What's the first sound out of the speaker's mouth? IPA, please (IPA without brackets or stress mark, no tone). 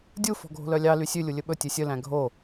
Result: dʲ